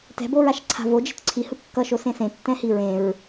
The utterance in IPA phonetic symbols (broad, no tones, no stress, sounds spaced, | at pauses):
t ɛ̤ b o ɹ a ʃ ǀʰ a̤ v o d͡ʒ i̤ t ǀʰ i h ɯ kː ʌ ʃ o s ẽ s ẽ tː ɛ̃ h i ɹ ẽ ɹ